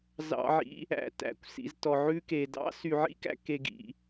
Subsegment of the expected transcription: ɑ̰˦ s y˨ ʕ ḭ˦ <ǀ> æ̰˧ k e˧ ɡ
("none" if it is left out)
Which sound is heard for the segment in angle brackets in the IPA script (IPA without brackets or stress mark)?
k